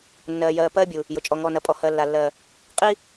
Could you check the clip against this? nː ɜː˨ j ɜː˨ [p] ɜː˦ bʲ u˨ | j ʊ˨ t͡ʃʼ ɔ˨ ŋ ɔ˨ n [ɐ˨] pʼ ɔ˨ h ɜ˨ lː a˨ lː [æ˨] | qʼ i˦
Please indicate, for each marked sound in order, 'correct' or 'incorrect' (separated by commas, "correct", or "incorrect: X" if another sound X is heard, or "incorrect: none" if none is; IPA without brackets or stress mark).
correct, correct, incorrect: ɜ˨